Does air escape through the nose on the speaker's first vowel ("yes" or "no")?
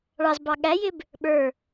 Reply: no